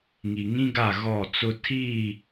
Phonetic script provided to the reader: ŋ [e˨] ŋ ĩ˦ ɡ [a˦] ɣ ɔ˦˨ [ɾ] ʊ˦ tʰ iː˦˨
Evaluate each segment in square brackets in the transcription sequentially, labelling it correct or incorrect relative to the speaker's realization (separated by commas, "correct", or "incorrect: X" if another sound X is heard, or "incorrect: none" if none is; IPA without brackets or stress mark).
incorrect: i˨, incorrect: a˦˨, incorrect: t͡s